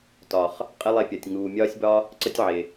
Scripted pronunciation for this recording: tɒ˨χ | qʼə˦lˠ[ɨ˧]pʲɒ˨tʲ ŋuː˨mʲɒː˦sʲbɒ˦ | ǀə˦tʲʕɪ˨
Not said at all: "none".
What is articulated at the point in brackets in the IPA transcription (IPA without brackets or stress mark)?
e˧